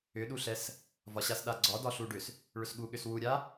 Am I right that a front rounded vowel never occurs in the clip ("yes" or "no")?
no